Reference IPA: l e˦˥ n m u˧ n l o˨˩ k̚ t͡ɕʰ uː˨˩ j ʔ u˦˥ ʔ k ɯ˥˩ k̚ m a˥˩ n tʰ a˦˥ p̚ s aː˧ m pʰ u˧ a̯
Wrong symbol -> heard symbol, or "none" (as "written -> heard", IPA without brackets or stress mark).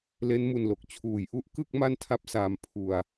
none